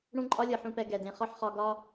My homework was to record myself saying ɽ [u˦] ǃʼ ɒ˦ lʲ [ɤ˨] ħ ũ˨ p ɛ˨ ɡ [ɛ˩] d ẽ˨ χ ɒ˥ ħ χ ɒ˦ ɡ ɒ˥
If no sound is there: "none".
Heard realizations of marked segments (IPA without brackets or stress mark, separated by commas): ũ˦, ɤ˨, ɛ˩